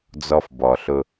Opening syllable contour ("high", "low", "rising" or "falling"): low